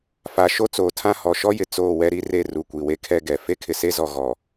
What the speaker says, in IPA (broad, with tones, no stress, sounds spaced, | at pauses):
f a˨ ʃ o˦ t͡s oː˨ tʰ ã˦ h ɔ˨ ʃ ɔ˦ j ɪ˨ t͡s oː˦˨ w ɛ˦ ɾ i˦ r e˦˨ r u˨ kʷ i˨ w e˦ kʰ ɛ˦ ɡ ɛ˨ f e˦ kʰ ɪ˨ s e˦ z ɔ˨ ɣ ɔ˨